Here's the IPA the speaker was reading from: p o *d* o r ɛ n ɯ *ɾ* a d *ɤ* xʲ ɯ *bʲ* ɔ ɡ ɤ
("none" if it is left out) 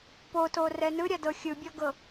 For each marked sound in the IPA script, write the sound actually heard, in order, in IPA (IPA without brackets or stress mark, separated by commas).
t, ɾʲ, ɤ, bʲ